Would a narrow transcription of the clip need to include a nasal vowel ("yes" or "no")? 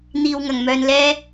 no